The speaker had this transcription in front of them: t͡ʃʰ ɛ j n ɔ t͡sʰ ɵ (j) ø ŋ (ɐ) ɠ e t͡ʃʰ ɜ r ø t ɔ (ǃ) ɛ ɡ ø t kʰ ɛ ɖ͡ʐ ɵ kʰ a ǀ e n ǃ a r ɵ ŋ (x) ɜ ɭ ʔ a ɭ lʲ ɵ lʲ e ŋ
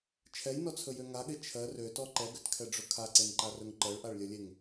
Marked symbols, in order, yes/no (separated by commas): yes, no, yes, no